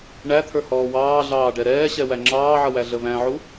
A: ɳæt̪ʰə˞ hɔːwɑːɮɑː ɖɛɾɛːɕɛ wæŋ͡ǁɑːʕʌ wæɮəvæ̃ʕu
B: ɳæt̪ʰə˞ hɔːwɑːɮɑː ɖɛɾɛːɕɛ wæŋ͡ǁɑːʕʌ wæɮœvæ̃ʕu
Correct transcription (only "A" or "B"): A